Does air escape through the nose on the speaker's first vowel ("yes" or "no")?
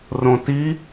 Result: yes